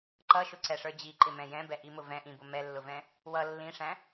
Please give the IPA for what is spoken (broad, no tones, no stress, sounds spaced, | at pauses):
ǃ ʌ ʃ ʊ ǀ ɛ ʂ ə˞ d͡ʑ i ǃ ɪ m ɛ̃ j ɛ̃ b ɛ ʔ i m ʊ v ɛ̃ ʔ ĩ b ʊ m ɛ lː ʊ v ɛ̃ | w ʌ lː ĩ ʂ æ̃